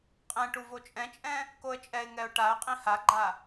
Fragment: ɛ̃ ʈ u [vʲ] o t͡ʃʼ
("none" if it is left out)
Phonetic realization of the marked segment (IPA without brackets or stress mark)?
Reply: v